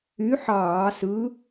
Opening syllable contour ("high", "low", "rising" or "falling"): rising